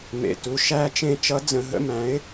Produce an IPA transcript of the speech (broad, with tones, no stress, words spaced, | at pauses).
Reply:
mḛ˩˧˩tu˩˧˩ ʃæ˦˨t͡ʃẽ˦˨ t͡ʃʌ˧˥d͡zə̃˧˩˧ɦə̰˧˥mæ̃˩˥ɪ̯